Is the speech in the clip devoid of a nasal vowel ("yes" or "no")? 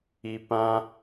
no